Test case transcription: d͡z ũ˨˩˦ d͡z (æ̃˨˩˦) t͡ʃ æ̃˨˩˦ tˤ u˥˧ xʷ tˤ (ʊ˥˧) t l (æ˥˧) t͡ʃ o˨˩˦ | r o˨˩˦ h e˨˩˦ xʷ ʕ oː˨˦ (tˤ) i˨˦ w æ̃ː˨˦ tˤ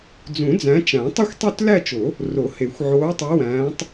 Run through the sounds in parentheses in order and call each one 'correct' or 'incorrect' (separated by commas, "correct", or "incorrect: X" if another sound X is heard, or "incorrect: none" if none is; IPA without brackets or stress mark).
incorrect: æ̃˨˦, incorrect: u˥˧, correct, correct